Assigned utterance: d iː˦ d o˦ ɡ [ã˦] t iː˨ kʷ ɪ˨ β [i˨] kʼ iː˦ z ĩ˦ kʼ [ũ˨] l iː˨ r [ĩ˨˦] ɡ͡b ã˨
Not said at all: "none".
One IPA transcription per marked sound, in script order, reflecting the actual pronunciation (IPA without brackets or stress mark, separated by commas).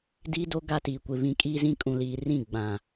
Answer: a˦, ĩ˨, ũ˨, ĩ˦˨